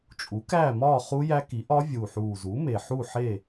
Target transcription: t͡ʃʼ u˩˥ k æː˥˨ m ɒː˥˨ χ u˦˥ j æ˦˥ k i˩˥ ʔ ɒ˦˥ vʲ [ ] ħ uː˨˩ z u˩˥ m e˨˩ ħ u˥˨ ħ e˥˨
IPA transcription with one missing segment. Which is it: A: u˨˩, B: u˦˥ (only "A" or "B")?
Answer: A